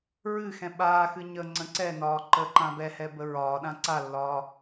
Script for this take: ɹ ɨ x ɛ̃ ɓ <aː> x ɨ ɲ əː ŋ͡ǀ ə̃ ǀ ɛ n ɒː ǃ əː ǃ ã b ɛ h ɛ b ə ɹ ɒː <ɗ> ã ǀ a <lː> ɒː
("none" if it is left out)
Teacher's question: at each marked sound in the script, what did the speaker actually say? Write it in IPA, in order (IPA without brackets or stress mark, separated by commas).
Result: aː, ɗ, lː